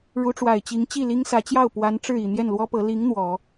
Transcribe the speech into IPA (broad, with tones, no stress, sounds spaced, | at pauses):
ɻ u˧˥ ʈ͡ʂ w a˨˩ ɪ̯ t͡ɕ i˧˥ ŋ t͡ɕ i˥˩ l i˥ ŋ s ä˧˥ t͡ɕ j ɑ˥˩ ʊ̯ p w a˧˥ n ʈ͡ʂ ɻ̩˥˩ i˨˩ n̪ j ɛ˥˩ n l w ɔ˥ p ɤ˧˥ l i˧˥ ŋ n̪ w ɔ˨˩˦